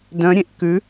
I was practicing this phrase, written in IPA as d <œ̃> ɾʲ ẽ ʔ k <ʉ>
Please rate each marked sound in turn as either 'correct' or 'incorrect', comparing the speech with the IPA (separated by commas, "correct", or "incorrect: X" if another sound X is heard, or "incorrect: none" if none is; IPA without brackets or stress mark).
correct, correct